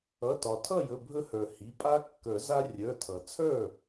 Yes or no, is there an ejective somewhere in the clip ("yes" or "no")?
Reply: yes